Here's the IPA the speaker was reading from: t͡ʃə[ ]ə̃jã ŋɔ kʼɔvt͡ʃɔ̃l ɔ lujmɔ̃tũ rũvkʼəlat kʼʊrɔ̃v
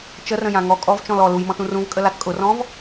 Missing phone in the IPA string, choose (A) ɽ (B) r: B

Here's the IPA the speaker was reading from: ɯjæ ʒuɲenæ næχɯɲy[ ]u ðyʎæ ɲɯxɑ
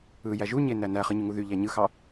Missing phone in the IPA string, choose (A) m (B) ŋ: B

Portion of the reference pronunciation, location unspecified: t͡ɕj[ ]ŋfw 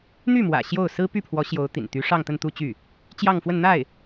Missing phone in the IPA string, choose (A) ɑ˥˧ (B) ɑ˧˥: A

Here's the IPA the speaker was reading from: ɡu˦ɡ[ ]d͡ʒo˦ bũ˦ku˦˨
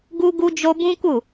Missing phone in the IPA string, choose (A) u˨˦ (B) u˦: B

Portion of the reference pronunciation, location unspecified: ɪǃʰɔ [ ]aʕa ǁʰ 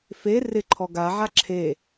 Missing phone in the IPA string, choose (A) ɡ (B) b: A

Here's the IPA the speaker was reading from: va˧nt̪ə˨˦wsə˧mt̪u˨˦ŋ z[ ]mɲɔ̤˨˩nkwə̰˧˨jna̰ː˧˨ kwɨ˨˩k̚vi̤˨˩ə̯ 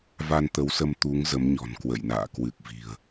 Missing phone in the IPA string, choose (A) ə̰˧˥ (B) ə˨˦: B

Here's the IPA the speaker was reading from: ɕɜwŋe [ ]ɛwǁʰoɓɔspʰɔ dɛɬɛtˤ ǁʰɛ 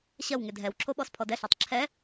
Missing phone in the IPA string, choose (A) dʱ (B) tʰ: A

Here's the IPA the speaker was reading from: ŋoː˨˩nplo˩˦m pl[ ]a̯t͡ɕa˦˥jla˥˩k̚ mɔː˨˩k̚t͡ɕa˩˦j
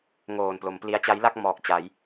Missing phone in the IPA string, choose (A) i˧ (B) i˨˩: A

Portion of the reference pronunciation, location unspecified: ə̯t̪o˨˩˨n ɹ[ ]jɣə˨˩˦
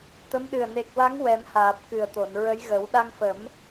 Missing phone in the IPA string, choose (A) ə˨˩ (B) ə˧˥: B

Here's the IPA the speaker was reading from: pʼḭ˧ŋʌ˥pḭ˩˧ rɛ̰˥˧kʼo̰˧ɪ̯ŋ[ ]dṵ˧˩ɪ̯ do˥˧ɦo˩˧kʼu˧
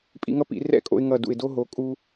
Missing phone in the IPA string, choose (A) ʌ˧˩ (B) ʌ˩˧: A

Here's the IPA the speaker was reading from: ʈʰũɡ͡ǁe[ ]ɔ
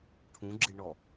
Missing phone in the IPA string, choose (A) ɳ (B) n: A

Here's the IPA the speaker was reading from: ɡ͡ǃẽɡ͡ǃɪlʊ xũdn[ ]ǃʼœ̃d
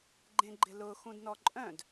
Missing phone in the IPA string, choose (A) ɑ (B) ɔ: B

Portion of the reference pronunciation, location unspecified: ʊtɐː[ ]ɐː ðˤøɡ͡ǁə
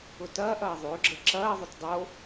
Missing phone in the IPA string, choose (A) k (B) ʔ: B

